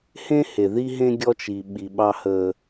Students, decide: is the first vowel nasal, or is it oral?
nasal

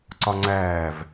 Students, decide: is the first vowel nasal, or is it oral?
oral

